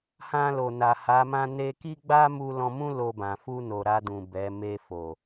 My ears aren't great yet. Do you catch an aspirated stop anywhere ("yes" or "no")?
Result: no